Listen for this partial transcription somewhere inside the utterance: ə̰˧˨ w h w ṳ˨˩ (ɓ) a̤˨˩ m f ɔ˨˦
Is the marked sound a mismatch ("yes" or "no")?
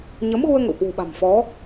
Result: no